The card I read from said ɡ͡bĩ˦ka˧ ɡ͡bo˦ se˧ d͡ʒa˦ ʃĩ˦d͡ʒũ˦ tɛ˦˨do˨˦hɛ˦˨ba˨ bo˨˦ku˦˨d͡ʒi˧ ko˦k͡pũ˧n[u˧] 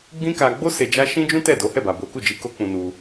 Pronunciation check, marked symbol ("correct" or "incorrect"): correct